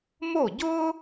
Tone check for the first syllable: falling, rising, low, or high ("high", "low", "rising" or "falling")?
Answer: falling